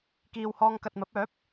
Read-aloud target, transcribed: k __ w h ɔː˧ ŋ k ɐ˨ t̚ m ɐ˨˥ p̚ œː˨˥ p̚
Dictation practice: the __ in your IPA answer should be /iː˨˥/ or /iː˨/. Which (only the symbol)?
iː˨